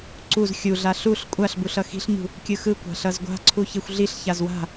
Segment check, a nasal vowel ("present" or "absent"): absent